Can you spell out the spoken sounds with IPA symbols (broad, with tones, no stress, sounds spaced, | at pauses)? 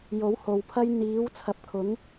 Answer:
j o˨˥ w h o˨ w pʰ ɐ˥ j n̪ iː˨˥ w t͡sʰ ɐ˨˥ p̚ kʰ ʊ˨˥ ŋ